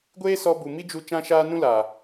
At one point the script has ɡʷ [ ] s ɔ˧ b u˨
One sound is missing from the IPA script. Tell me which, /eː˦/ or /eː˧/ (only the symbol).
eː˦